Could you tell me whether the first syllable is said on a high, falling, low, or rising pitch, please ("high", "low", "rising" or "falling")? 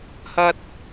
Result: high